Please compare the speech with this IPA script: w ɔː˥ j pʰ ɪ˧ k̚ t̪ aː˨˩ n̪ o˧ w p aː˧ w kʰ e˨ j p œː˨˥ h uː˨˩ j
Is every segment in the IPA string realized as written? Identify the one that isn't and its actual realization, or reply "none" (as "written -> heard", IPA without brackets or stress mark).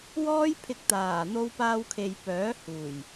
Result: none